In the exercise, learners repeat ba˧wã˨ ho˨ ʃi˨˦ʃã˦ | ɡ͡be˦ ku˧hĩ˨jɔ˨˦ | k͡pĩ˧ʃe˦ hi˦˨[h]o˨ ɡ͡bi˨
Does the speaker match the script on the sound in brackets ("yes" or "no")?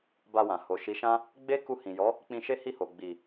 yes